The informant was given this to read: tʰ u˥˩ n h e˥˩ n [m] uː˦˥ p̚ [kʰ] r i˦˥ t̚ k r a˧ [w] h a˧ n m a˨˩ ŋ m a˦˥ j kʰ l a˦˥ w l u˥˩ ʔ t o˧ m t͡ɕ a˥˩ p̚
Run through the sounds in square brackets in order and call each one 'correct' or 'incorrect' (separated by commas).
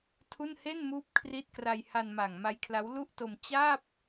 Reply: correct, correct, incorrect